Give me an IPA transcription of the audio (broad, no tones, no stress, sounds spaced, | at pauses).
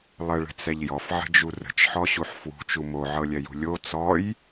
lˠ ə ɭ ə̤ t͡s ɛ ʎ j ɔ f ʕ ə̤ d͡ʒ u r ə̤ t͡ʃ ħ ɔ ɕ u ħ f w ṳ t͡ʃ u m o ʕ ɤ lʲ ɛ j ṳ lʲ o t͡s ɔ j